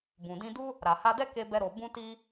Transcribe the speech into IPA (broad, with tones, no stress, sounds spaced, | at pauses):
b ũ˨ d ĩ˧ d u˦ | ɾ a˨ h a˧ d ɛ˦ k e˦ b ɛ˦ ɾ o˧ b ũ˧ t i˧